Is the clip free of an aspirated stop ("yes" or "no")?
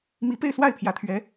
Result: no